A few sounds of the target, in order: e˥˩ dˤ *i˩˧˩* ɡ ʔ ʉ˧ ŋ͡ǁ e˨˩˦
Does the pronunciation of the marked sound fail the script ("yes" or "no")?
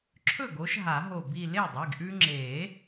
no